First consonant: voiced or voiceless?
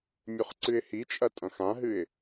voiced